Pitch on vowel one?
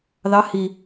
rising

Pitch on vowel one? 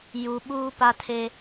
low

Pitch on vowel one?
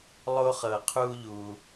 high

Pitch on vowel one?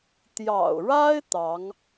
low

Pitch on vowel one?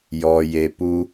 low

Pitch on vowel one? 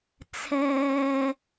low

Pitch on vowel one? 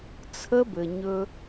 high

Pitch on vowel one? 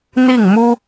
falling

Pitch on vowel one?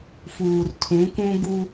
low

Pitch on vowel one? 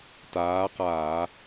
rising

